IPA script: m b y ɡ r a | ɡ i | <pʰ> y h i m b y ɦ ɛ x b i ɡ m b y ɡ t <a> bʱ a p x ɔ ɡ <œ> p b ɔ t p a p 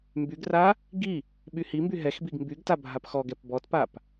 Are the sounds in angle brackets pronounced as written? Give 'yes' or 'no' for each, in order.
no, yes, no

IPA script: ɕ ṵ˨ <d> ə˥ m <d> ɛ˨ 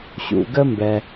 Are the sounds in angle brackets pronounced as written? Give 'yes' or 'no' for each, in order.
no, no

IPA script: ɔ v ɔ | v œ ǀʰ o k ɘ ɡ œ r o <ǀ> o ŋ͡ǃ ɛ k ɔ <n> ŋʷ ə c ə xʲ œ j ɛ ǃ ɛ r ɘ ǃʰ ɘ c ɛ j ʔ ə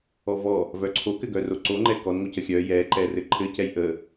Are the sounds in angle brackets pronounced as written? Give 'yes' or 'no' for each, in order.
yes, yes

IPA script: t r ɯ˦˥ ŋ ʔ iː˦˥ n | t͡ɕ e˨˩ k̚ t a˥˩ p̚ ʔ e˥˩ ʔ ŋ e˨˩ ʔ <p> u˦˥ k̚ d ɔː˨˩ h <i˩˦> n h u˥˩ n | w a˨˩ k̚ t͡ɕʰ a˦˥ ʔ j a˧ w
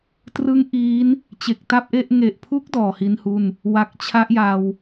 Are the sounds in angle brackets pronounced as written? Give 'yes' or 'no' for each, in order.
no, no

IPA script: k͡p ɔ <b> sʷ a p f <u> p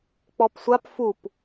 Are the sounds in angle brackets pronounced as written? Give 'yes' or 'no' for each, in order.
no, yes

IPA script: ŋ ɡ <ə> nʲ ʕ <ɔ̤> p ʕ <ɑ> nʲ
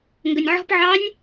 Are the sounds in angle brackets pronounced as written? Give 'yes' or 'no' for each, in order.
yes, yes, yes

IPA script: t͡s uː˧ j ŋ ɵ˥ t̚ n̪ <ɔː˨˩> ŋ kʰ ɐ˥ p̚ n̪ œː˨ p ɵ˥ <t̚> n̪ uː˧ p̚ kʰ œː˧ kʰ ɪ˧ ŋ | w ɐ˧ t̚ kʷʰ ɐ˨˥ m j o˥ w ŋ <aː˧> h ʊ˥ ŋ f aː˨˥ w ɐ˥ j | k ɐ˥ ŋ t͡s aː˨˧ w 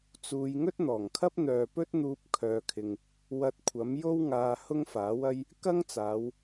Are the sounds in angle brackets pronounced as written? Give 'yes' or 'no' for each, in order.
yes, yes, yes

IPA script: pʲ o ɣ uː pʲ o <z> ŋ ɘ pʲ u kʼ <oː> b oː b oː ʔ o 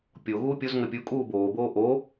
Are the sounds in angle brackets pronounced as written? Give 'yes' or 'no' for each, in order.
yes, no

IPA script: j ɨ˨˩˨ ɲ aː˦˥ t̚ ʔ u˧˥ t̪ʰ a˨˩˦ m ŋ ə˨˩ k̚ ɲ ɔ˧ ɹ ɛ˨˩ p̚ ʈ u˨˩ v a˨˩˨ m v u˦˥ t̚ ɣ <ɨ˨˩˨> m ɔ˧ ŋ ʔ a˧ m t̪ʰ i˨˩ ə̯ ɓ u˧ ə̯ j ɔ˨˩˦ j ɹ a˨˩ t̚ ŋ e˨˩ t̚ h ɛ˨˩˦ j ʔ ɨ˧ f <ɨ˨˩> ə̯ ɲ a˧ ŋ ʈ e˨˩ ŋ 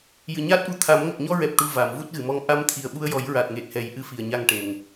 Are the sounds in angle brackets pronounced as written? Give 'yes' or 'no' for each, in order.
yes, no

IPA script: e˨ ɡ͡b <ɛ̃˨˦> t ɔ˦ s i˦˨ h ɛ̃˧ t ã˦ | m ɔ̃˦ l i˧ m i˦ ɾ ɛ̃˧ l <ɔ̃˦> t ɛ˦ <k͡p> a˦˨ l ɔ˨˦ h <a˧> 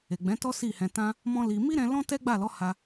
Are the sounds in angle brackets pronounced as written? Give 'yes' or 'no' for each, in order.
yes, yes, no, no

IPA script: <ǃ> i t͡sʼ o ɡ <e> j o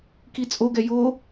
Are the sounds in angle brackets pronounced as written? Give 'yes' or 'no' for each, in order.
no, no

